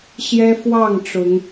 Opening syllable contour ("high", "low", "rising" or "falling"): high